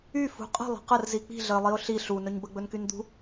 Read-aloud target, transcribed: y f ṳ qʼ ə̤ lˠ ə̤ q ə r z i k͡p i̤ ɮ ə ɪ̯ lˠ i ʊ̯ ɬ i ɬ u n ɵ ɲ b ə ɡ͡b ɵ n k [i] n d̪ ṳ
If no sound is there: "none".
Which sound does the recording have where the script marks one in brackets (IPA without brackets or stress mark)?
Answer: y